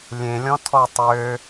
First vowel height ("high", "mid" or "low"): mid